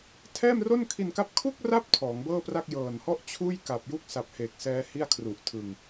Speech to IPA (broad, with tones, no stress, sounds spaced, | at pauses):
tʰ ɛː˥˩ m r o˥˩ n kʰ i˧ n k a˦˥ p̚ kʰ u˥˩ k̚ r a˦˥ p̚ tʰ ɔː˩˦ ŋ b ɤː˥˩ p r a˥˩ k̚ j ɤː˨˩ n h ɔ˥˩ ʔ t͡ɕʰ uː˥˩ j k a˨˩ p̚ j u˥˩ k̚ s a˨˩ p̚ h eː˨˩ k̚ s ɛː˦˥ h i˥˩ a̯ kʰ r u˨˩ ʔ tʰ ɯ˧ ŋ